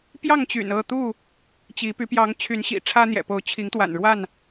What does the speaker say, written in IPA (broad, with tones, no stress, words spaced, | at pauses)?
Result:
pjɑ˥˨ŋt͡ɕy̰˨˩nɤ˥˨t̪u˥˨ | t͡ɕi˨˦py˨˦ pjɑ˨˦ŋ t͡ɕʰy˨˦nɕḭ˨˩ ʈ͡ʂʰä˦n̪jɛ̰˨˩ po˨˦ʊ̯t͡ɕʰi˨˦ŋ t̪wa̰˨˩nɻwa˥˨n